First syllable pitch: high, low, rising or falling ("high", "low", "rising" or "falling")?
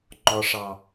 low